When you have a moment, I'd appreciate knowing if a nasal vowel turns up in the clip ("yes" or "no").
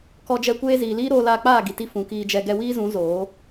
yes